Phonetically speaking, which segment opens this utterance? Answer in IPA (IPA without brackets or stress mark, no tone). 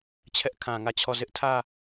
t͡ɕʰ